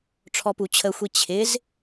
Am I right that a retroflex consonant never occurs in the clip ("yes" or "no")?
no